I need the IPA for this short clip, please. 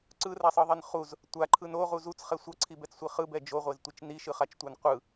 ǀ ɯ r a sˤ ɯ ðˤ i n χ u z | tʷ a ǃʰ ɯ n o ʁ u z u t͡s χ ɛ sʷ ʌ ǀʰ i b ɛ t͡s sʷ i χ ɯ b ɛ d͡ʒ o ʁʷ e z tʷ i t͡ʃ n i ʃ ɯ χ a t͡ʃ tʷ ɛ n qʷ ɯ

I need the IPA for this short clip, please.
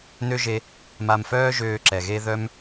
n ø˦ ʒ e˧ | m a˧ m f œː˦ ʒ øː˧ ǁ ɛ˨ ɣ e˧ ð œ˦ m

